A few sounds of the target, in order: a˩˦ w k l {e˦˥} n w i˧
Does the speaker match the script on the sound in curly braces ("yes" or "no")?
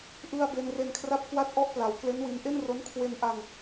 yes